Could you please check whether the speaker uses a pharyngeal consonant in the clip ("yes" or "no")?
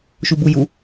no